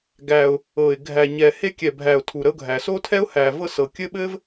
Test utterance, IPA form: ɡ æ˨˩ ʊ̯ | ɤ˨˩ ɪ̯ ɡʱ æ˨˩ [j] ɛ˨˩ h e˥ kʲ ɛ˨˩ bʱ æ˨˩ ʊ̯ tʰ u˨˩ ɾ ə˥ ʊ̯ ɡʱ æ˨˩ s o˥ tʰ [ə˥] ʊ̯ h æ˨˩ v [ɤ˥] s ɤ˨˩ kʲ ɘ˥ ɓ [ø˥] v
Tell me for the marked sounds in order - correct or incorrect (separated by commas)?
incorrect, incorrect, correct, incorrect